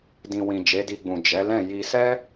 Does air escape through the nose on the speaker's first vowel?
yes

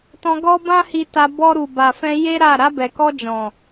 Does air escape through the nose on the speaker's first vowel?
yes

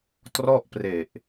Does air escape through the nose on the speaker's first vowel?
no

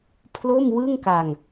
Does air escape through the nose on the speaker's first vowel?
no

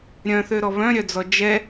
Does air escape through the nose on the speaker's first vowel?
yes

